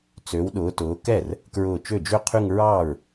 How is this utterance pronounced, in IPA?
t͡s ø˨˦ w ɗ ʊː˨˦ t ʊː˨˦ k ɛ˥˩ r | k ɹ ʊː˧˩ t͡ʃ ø˥˩ d͡ʒ ø˥˧ qʰ y˥˧ ŋ ɹ ɑː˥˩ ɹ

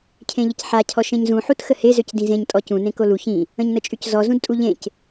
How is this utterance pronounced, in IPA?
cʰ ẽ ʎ ə c ħ a cʰ ɔ ʃ ẽ ɲ z ũ ħ u t x ə h e z ø c d ĩ z ẽ ɲ tʼ ɔ c ũ n ẽ k o l u ç ĩ | ə̃ ɲ n ə t͡ʃʼ y c z ɔ z ũ d tʼ u ʎ ẽ c

